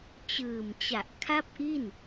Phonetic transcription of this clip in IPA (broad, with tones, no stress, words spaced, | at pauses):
t͡ɕɯː˨˩mt͡ɕa˨˩ʔ kʰa˥˩p̚ʔi˥˩n